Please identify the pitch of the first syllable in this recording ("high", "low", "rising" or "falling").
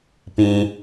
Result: low